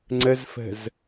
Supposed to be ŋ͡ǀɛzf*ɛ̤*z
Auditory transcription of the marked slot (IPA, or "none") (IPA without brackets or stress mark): ɛ̤